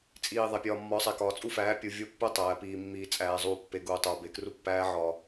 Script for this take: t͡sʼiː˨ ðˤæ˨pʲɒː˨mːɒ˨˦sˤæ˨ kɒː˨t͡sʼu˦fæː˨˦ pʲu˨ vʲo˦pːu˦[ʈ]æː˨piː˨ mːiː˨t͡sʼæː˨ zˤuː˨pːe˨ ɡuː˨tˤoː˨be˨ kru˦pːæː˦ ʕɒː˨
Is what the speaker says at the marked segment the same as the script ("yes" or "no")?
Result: no